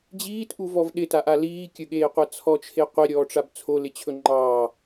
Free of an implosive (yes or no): no